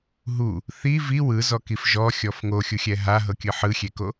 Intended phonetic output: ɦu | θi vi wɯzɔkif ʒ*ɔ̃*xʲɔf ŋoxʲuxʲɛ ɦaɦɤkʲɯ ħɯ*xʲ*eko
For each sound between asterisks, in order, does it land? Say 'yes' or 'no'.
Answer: no, yes

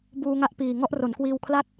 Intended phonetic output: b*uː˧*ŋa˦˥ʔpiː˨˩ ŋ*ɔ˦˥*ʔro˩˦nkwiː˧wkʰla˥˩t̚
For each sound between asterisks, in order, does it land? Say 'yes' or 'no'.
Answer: yes, yes

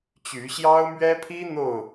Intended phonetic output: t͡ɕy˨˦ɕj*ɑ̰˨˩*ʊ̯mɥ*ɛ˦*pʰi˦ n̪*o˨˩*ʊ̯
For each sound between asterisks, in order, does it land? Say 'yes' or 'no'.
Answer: no, yes, no

